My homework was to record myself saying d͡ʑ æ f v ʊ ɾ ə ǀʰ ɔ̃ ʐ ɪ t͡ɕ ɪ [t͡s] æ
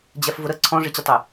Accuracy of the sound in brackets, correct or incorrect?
incorrect: tˤ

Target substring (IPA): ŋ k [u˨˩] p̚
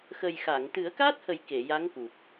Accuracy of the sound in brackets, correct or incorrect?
correct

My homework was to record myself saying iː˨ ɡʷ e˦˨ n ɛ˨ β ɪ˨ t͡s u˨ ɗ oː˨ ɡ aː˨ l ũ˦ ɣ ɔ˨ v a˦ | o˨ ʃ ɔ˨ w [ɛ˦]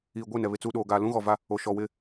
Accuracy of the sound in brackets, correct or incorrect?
incorrect: ɪ˦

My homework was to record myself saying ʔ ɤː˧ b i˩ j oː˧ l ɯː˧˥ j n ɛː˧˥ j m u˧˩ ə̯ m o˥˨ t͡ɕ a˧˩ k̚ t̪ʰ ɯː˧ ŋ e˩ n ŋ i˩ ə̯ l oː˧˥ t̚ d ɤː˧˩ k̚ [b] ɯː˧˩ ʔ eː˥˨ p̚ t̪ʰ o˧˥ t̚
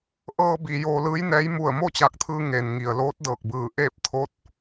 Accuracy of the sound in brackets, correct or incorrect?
correct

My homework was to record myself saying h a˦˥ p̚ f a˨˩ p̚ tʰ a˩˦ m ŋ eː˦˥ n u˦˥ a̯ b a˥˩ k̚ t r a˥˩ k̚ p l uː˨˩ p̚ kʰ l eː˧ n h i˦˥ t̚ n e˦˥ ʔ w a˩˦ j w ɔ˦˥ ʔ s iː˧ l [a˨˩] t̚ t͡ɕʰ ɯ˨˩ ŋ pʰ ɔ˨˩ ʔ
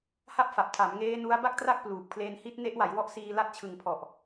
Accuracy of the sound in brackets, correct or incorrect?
incorrect: a˦˥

